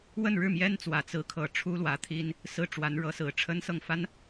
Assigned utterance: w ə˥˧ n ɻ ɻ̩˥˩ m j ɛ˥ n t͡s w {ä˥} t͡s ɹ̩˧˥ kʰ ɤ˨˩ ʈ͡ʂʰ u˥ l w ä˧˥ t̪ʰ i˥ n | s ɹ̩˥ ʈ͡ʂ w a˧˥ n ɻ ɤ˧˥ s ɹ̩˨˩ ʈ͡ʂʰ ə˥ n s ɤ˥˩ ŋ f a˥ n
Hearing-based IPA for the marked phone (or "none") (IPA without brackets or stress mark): ä˨˩